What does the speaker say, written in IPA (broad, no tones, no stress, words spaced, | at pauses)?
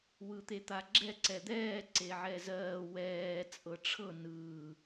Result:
wɯt̪et̪aɡ͡ǁɛ ǀɛd̪ɛː ǀeʕɛzɜː wɛː t͡sʼɤʈ͡ʂʰɤ nɯː